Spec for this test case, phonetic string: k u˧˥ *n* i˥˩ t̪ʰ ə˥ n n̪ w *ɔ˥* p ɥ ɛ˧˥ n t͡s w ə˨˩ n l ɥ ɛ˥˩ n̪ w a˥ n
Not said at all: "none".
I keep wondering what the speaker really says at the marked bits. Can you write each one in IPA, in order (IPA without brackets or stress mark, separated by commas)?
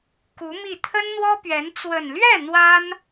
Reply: m, ɔ˥